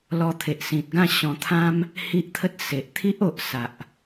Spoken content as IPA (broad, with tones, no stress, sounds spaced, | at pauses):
l ɔ˧ t̪ʰ e˨ ʔ s ĩ˨ t̚ ɡ ã˥˧ ɕ ɔ̃˧ t̪ʰ ã˦ m | h i˦ ʔ t̪ʰ ə˦ t̚ s e˨ ʔ t̪ʰ i˦ ʔ o˨ ʔ s a˨ ʔ